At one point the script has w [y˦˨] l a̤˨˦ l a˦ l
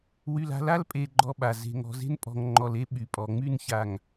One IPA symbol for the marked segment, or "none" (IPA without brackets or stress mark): y˨